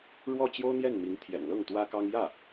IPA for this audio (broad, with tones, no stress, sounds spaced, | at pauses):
ɻ w ɔ˥˩ t͡ɕ j o˥ ʊ̯ n̪ j ɛ˥˩ n m i˧˥ ŋ t̪ʰ j ɛ̰˨˩ n l ɤ˥˩ ŋ t̪ w ä˥ k ɑ˥ ŋ j ä˥˩